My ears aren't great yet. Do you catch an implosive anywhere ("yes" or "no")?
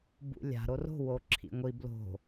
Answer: no